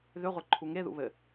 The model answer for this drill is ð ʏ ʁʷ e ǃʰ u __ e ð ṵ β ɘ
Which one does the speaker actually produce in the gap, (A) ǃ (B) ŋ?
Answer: B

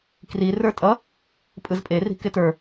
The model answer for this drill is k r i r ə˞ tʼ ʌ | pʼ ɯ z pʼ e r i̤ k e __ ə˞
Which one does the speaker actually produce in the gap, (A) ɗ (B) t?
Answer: B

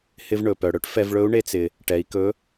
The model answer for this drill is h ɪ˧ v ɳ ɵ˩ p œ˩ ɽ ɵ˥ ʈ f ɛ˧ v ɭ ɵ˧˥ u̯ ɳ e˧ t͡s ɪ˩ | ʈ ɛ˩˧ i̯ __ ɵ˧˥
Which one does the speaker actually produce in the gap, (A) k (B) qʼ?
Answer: A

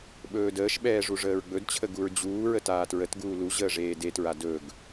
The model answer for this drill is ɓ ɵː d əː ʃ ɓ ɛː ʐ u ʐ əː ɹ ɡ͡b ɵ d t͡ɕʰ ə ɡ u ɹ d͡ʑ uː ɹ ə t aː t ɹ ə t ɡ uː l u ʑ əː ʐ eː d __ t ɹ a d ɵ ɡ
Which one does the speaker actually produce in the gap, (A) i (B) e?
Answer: B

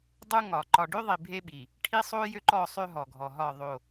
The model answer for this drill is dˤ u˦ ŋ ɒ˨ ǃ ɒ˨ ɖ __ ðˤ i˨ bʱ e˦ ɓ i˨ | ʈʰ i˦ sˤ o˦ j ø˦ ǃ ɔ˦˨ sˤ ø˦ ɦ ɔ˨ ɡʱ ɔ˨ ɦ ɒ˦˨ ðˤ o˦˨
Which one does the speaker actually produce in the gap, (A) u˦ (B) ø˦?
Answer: B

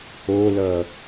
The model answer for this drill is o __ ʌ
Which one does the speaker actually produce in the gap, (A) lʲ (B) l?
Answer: B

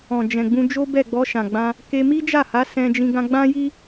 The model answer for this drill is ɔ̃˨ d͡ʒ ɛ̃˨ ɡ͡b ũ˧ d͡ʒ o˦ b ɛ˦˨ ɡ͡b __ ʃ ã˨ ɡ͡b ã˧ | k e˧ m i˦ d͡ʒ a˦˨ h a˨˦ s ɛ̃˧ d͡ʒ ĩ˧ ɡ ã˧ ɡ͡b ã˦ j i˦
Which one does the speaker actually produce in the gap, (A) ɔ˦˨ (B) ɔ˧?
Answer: B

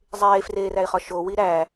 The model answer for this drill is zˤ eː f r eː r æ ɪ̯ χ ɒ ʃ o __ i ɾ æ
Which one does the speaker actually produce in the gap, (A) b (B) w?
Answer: B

